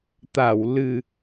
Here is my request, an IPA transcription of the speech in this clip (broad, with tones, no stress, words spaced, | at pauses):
t̪a˧˩w lɨ˨˩